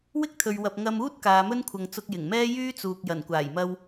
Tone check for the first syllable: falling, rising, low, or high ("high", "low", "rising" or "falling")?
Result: high